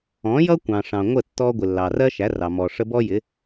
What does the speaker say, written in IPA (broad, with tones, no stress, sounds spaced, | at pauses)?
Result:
ɔ̃˨˦ j ʌ˦ kʷ ɑ̃˨ ʂ ɑ̃˨ ŋʷ ə˦˨ tː ɔ˧ ɡʷ ɪ˨ lː ɑ˨ r ɜ˦ ʃ æ˨˦ r ɑ˨ m ɔ˨ ʂ ə˦ b ɔ˦ j ɪ˨˦